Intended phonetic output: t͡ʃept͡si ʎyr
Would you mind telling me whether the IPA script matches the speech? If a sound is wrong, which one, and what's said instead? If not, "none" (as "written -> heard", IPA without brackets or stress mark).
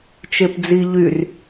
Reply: t͡s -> d͡z